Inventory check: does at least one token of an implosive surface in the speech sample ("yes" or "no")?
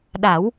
yes